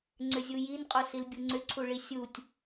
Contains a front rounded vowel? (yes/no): yes